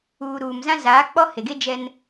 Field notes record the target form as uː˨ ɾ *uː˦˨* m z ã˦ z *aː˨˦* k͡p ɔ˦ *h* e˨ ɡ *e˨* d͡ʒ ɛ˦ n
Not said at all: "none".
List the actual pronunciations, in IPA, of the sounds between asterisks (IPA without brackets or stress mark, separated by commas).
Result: uː˨, aː˨˦, h, e˦